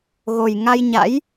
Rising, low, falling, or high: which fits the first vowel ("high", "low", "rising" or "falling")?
low